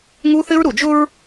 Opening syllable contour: high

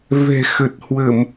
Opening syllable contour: low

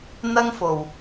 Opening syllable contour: high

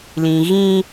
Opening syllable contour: low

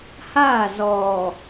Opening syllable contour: falling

